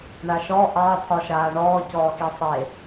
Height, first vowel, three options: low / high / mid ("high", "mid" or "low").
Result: low